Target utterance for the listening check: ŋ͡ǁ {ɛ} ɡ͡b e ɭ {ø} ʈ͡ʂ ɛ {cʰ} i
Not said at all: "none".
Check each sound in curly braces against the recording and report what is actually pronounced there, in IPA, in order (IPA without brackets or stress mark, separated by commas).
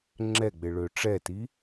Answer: ɛ, ø, t